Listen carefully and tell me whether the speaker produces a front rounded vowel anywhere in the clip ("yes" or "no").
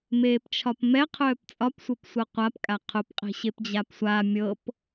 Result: yes